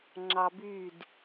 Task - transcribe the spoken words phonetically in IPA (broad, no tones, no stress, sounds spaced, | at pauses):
ŋ͡ǁ ɑ b y d